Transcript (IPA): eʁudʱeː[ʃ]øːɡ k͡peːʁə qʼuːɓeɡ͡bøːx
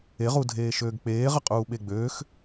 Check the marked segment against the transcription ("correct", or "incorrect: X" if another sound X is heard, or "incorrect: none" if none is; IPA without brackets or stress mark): correct